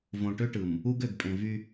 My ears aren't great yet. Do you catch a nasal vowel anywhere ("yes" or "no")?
yes